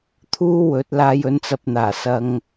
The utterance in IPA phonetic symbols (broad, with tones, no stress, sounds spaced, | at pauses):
t̪ʰ uː˥ w ɵ˨˥ t̚ l aː˧ j ɵ˨˥ n t͡s ɐ˧ p̚ n̪ aː˨˩ s ɐ˧ ŋ